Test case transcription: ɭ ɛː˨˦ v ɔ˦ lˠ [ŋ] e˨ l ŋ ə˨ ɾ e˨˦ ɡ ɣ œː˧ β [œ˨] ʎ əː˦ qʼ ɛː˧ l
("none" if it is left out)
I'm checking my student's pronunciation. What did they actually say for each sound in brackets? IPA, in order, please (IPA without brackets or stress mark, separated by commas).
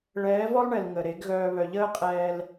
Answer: ɳ, œ˨